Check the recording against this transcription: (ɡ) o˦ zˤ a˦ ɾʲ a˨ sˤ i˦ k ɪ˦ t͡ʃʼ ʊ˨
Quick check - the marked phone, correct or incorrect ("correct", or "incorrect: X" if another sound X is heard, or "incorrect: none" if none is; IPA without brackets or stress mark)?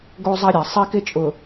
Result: correct